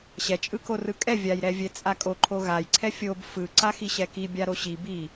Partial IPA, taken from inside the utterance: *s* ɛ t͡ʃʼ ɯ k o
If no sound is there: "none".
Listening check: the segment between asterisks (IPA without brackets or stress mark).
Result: ɕ